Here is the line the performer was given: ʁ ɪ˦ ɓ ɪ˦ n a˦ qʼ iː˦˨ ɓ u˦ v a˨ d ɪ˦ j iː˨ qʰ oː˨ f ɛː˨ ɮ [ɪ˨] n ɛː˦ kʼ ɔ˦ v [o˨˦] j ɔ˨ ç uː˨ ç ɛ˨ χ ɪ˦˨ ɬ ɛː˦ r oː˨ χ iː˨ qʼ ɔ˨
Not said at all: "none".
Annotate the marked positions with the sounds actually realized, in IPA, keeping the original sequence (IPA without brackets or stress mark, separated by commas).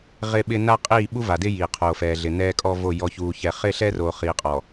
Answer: ɪ˨, o˦˨